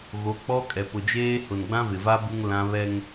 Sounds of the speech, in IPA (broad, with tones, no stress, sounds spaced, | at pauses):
ɣ o˨˦ k͡p ɔ˦ kʼ ɛ˨ p ʊ˨ d͡ʒ eː˦ h ʊ˨ n ɡ͡b ã˦ v ɪ˨ v a˦ b u˦ ŋ l ã˦ β ɛ˦ ŋ